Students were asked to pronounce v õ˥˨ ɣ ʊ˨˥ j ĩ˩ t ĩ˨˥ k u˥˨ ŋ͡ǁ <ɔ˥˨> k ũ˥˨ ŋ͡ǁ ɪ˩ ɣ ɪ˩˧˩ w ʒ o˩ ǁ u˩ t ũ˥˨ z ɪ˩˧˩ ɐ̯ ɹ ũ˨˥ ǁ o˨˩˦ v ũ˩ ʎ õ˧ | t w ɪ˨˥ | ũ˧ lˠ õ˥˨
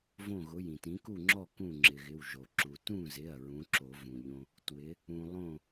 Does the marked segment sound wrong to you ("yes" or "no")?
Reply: no